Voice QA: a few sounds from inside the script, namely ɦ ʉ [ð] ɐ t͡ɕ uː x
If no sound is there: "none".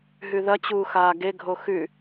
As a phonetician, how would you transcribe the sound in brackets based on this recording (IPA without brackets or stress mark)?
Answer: ð